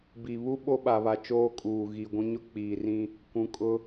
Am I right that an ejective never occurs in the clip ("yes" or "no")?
no